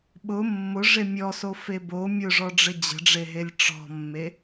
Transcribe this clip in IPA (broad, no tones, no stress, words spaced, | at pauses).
ɓʊ mːʊʐe mʲɔsofe bo mʲʊʐɔɖ͡ʐɘ d͡ʑə̤ɖ͡ʐeɦelʲ ʈ͡ʂɔ̤mːe